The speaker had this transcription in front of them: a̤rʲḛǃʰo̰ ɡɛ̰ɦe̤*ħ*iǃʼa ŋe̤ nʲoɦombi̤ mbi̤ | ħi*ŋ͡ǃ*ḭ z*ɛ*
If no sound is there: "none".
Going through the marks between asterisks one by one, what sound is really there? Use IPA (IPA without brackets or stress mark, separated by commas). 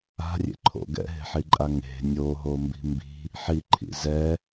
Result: ħ, ǃʰ, ɛ